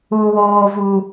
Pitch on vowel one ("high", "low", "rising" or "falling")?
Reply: high